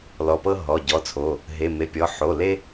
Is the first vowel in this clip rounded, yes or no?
yes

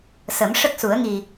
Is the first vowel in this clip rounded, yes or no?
no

